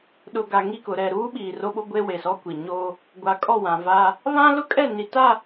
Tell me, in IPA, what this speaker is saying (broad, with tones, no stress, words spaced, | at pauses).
ɗʊ˨ ɡa˨ŋi˦˨ kʊ˨ɾɛ˨ɾuː˦ ɓiː˨ro˦ɓo˦ ɡʷe˦we˨sɔ˦ kʷi˨ ɲoː˦ | ɡʷa˨kʼɔ˦˨ wã˨va˦ | βã˦lʊ˦kʼɛ˦˨ ni˨ta˦˨